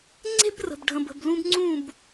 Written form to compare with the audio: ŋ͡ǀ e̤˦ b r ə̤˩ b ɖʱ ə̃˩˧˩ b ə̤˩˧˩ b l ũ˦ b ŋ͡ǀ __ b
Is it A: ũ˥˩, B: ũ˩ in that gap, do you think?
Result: A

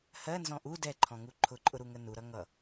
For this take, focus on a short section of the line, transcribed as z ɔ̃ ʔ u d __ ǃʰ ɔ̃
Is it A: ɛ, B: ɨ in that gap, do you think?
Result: A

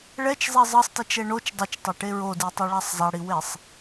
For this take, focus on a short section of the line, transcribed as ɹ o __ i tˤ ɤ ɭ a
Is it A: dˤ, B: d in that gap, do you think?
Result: B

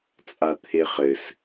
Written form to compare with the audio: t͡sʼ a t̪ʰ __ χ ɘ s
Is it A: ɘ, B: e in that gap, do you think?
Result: B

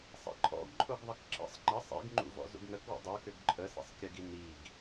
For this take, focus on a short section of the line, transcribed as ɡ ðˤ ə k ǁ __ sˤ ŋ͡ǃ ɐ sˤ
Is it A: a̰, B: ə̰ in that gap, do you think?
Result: B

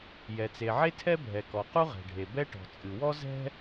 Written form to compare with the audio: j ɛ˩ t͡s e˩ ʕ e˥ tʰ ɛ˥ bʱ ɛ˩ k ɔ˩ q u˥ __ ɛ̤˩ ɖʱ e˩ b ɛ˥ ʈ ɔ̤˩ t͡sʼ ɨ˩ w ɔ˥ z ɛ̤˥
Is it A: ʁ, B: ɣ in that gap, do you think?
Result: A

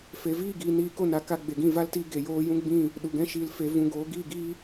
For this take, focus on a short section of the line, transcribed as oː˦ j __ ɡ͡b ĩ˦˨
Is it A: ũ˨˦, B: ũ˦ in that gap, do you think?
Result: B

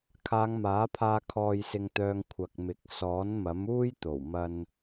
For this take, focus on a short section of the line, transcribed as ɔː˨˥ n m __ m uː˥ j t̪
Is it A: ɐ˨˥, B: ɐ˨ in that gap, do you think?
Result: A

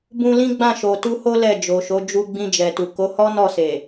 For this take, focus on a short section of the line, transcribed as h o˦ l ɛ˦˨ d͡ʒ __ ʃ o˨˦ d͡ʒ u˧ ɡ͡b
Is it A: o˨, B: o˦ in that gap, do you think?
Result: A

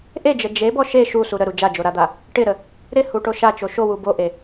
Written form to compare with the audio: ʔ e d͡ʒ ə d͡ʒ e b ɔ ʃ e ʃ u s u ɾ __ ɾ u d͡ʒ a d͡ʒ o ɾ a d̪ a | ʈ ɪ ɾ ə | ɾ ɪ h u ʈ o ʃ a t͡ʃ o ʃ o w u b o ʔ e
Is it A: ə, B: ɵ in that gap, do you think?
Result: A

